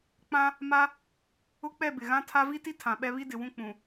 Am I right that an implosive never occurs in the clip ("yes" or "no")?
no